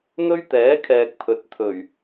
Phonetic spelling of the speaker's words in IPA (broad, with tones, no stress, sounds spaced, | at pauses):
n̪ ɵ˥ ɥ t̪ ɛː˨˥ kʰ ɛː˨ k̚ pʰ ɵ˨ t̚ t̪ʰ ɵ˨˩ ɥ